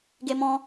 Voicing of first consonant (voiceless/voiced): voiced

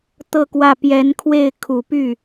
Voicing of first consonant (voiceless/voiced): voiceless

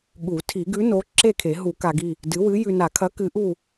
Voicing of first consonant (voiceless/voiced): voiced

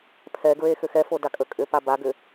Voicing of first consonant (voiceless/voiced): voiceless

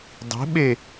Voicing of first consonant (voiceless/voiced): voiced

